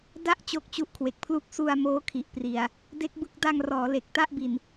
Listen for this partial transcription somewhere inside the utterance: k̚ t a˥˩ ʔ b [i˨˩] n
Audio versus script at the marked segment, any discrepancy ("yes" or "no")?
no